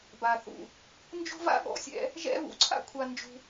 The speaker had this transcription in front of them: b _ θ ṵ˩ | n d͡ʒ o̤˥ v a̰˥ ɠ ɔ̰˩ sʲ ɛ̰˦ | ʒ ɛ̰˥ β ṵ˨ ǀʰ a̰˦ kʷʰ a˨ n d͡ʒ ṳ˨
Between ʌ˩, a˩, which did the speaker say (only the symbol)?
a˩